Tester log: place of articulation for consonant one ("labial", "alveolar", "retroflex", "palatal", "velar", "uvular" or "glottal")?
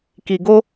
velar